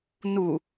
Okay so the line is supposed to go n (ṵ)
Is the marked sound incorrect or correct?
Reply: incorrect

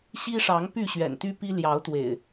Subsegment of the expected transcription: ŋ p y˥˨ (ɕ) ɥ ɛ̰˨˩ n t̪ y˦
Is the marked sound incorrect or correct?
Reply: correct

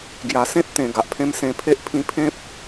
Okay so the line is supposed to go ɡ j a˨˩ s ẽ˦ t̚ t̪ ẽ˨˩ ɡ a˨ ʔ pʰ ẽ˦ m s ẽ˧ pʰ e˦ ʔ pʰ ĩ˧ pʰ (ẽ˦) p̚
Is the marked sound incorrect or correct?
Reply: correct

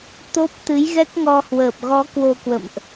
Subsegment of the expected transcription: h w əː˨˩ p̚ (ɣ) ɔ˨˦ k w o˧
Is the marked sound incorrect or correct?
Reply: correct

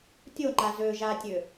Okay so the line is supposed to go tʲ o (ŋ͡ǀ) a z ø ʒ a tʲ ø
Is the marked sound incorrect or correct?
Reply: incorrect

